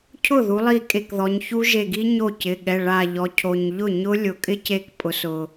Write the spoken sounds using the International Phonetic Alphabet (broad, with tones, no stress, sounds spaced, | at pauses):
cʰ ʊ˥˩ ð u˩˧ lˠ i˧˩ kʼ e˧˩ k ð ɔ˩˧ ɲ ç u˦˥ ʒ e˧˩ ɡ i˦˥ ɲ o˥˩ c ɪ˩˧˩ ɠ ɛ˩˧˩ ɭ a˧˩ ʎ ɔ˩˧ cʰ o˩ ɲ ʎ ʊ˥˩ ɲ ʊ˦˥ lʲ ʊ˩ kʼ ɪ˦˥ c e˧˩ k pʼ ʊ˩˧ s ʊ˩